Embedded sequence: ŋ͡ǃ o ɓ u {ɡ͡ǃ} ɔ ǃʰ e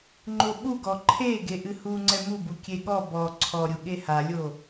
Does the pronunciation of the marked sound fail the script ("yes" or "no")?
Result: yes